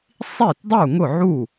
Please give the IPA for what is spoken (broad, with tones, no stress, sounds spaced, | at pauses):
sˤ i˥˩ t dˤ u˥˩ ŋ ʊ˥˩ ʕ u˥˩